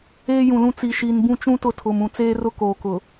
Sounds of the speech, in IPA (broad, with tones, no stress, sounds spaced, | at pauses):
eː˦ j ũ˨ l ũ˦ t͡s i˨ ʃ i˨ n b ũ˦ t͡ʃ ũ˦ t ʊ˦ tʰ ʊ˨ m ũ˨ t͡s eː˦ r ʊ˦ k oː˨ k ʊ˨